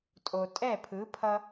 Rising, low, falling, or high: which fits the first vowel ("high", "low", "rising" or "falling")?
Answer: low